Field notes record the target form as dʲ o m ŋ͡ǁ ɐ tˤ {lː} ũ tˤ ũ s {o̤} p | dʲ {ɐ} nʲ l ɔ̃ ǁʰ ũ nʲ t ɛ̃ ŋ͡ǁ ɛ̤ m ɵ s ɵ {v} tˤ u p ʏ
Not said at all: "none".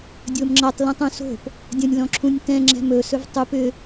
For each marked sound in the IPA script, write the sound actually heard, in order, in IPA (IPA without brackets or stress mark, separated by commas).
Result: l, o̤, ɐ̃, v